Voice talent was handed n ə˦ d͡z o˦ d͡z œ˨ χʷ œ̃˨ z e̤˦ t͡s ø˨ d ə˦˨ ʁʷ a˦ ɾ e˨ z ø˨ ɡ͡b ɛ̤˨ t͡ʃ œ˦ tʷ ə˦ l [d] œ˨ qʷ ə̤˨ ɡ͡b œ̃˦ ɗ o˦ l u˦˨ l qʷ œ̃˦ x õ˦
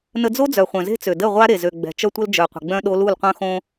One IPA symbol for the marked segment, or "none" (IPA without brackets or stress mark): d͡ʒ